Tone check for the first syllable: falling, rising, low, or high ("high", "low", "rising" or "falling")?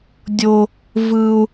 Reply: high